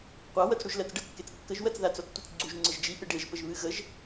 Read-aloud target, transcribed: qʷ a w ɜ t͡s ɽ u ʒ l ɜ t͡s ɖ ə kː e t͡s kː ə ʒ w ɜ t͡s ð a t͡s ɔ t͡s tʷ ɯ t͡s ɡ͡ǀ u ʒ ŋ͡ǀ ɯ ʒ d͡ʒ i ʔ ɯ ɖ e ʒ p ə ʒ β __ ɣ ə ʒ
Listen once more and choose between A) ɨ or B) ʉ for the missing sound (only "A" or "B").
A